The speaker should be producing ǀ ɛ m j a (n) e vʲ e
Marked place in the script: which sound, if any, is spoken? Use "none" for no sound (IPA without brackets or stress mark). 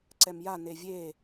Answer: n